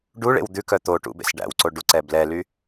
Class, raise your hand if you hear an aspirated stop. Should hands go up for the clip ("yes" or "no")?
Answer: no